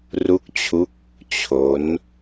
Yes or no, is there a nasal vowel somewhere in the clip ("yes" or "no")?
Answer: no